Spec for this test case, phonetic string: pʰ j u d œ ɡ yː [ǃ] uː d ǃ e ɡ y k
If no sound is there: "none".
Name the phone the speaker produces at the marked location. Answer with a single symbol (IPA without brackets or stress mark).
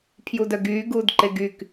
ɡ